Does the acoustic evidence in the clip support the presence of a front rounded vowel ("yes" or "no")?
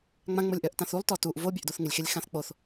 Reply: yes